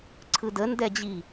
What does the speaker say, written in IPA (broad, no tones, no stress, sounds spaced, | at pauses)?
ǀʰ ɯ d ə n d ɛ d͡ʑ i